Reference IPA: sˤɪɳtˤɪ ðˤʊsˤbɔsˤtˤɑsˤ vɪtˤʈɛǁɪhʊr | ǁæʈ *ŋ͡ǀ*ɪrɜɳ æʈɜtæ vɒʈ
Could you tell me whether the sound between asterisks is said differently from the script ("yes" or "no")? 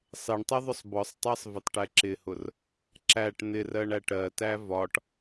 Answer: yes